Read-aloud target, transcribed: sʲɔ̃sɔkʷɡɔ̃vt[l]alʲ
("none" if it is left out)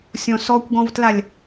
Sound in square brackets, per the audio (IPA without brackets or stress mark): l